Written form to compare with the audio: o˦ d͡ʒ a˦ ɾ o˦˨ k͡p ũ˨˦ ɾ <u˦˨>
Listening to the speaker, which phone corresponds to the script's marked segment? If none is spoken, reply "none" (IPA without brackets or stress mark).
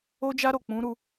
u˦˨